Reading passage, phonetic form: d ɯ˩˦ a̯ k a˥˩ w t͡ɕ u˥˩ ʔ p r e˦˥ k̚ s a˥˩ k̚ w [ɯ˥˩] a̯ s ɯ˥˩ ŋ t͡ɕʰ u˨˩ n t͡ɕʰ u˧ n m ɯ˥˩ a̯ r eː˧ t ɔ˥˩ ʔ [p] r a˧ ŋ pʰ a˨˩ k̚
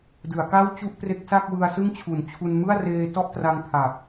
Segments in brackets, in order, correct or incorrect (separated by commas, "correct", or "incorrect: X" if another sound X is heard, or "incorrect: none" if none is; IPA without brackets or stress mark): incorrect: ɯ˧, incorrect: t